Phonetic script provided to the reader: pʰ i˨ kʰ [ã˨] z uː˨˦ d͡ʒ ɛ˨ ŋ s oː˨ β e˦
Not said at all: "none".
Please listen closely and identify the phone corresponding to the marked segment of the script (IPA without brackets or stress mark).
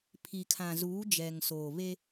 ã˨